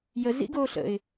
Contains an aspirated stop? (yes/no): no